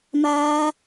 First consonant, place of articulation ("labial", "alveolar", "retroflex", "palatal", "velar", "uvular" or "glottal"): labial